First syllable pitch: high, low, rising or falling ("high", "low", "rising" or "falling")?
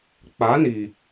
rising